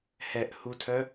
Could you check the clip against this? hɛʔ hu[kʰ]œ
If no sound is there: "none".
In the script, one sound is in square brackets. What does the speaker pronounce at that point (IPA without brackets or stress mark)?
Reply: tʰ